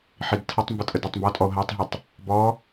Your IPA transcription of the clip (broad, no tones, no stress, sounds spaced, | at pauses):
ħ i d tʰ ʌ tˤ m b ʊ tʼ ə d ɜ tˤ m b ɔ tʼ ɔ o̯ ɦ æ tˤ ɦ ʌ tˤ | b ɔ